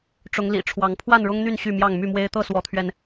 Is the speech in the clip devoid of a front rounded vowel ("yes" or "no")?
no